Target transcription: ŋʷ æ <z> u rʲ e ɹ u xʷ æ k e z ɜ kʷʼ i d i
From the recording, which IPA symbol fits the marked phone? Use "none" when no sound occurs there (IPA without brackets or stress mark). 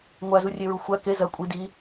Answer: z